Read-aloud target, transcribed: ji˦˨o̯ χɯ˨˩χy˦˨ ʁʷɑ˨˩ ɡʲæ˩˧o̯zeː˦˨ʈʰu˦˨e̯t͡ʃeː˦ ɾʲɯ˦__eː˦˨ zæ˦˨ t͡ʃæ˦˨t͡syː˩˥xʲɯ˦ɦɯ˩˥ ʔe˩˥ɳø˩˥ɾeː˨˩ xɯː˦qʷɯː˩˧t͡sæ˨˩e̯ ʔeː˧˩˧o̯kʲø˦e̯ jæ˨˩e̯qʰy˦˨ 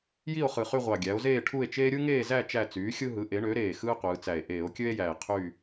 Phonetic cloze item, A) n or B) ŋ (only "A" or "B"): B